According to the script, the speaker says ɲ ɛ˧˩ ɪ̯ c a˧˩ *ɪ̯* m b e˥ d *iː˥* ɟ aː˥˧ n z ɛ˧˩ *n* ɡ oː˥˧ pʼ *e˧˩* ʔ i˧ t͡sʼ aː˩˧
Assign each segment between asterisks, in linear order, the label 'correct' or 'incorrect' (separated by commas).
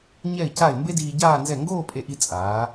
correct, incorrect, incorrect, incorrect